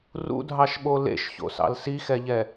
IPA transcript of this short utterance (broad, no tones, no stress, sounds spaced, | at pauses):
r ṵ dʱ ɑ ʃ ɓ o l ḛ ʃ ç o̰ s ɑ̰ l s i x ɛ ʎ ɛ